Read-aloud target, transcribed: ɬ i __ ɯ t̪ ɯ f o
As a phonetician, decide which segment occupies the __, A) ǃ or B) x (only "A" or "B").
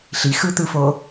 B